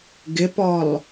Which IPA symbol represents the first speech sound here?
ɡ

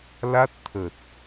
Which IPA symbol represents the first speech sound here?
l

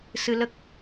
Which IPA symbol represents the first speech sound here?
s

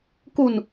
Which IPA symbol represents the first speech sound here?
k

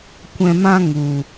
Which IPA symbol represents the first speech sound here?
kʷ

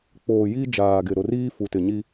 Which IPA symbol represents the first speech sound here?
k͡p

